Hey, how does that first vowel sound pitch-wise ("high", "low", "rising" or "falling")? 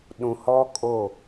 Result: low